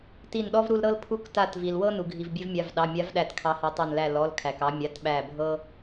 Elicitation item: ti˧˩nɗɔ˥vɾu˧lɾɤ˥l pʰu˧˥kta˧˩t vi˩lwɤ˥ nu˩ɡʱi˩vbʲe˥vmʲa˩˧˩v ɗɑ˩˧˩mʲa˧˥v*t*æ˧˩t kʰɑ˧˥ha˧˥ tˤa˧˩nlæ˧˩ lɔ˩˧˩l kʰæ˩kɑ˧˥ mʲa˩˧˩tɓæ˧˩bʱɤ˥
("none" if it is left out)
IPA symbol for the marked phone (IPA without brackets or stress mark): ɗ